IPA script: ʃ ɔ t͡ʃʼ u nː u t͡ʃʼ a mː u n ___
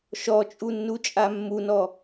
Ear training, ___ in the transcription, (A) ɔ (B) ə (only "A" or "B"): A